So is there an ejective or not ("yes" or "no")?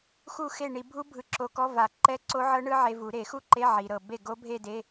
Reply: no